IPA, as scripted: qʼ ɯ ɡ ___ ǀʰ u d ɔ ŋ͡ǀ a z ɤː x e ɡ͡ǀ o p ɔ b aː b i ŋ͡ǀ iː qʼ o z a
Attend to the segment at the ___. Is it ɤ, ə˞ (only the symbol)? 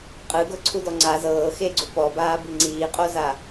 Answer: ɤ